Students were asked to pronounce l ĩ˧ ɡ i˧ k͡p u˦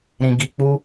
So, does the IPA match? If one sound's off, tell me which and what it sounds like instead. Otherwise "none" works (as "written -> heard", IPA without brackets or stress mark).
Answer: l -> ɾ